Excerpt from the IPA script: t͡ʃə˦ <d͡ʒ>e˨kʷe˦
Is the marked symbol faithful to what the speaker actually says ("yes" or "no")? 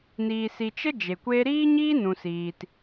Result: yes